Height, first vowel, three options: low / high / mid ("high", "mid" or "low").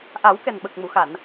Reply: low